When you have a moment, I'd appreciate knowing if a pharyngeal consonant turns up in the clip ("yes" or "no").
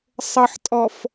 yes